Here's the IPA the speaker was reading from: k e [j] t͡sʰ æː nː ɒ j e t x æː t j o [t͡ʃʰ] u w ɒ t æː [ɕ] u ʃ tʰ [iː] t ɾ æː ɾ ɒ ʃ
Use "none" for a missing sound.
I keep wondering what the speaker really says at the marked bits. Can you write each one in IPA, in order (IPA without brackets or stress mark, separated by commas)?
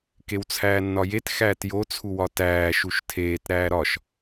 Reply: w, t͡sʰ, ʃ, eː